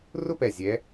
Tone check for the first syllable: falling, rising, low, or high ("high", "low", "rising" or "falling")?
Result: high